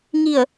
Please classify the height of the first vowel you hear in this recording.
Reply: high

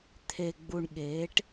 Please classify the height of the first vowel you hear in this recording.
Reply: mid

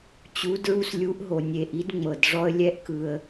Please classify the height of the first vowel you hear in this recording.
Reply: high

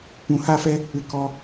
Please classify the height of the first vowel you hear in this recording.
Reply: high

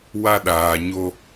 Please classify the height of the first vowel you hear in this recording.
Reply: low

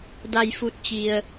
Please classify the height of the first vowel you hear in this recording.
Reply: low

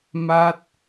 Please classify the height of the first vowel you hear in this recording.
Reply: low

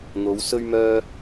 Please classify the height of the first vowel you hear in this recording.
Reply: mid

